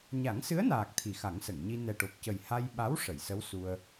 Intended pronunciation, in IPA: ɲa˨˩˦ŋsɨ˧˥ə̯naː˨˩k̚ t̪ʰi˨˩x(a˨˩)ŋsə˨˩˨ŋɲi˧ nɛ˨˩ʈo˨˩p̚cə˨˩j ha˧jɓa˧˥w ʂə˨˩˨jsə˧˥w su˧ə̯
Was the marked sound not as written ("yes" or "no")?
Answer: yes